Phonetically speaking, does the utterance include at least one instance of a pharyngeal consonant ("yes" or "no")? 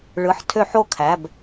yes